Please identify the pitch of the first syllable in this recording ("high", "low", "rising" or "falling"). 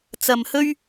low